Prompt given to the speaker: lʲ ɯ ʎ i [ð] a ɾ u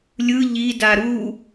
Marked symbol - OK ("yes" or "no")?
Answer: no